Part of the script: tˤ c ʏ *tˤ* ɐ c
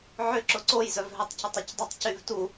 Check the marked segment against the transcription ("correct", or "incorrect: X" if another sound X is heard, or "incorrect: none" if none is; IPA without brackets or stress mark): correct